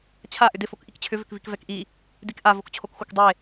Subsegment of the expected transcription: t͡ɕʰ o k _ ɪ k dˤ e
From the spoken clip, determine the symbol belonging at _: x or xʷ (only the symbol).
xʷ